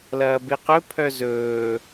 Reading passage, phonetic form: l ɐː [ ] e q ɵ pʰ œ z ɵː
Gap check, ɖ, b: b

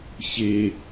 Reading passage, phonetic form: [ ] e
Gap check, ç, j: ç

